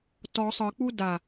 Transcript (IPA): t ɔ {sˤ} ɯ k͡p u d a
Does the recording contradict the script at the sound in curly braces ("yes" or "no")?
no